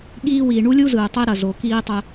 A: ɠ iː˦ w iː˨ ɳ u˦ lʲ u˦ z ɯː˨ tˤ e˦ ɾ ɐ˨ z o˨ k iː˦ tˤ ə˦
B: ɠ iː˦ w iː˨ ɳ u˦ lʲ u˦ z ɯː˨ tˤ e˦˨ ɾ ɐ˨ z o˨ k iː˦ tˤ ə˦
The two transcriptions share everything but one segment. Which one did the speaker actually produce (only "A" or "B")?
A